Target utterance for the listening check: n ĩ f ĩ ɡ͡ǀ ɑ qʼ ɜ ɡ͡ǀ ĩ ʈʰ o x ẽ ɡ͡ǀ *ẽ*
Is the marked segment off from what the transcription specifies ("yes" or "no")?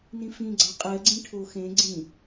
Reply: yes